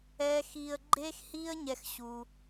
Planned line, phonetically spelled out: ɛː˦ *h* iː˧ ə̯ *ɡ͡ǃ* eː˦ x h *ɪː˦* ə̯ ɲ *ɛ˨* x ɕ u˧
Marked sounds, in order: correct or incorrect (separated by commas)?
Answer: incorrect, correct, incorrect, incorrect